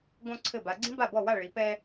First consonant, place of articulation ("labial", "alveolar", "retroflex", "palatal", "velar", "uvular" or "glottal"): velar